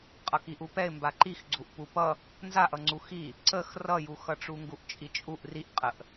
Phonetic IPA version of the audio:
qʼ ʌ k i ʔ u p ɛ ɪ̯ m b a ǃ i x ɡ͡ǀ u ʔ p u p ʌ | n z a ʔ ʌ ŋ͡ǀ u x i | ǀ ə x r ʌ j u x ʌ ʈ͡ʂ u ŋ ɡ u ʔ t͡ʃʼ i t͡ʃʼ u ʔ r i ʔ qʼ ə ʔ

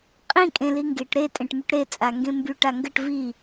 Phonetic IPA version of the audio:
qʼ ĩ kʼ ẽ l i ŋ ɡ e ʈ ɾ e tʼ ẽ ʈ m y ʈ ɾ e t͡sʼ a ŋ ɡ ẽ m b y ʈ a ŋ ɡ ə ʈ v i

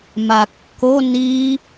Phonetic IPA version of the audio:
m a kː o n i

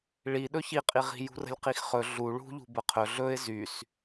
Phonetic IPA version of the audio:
ɭ i ɗ ɵ ç i qʼ i ʁ i̤ j ṳ r ə̤ lʲ q i x χ ɵ ɮ u ɭ ṳ ʎ ṳ b ə qʰ ɵ ɮ ɵ ɪ̯ z y s

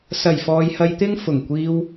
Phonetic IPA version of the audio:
s ɐ˨˩ j f ɔː˨ j h ɐ˧ j t̪ ɪ˥ ŋ f ʊ˨˩ ŋ kʷ iː˧ w

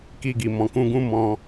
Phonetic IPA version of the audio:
k i˧ ɡ i˨ m ɔ̃˨ k ũ˧ ɡ ũ˦ m ɔ̃˧

